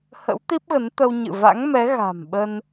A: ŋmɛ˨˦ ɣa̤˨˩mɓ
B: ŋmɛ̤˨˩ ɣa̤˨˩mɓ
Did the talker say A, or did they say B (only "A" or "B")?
A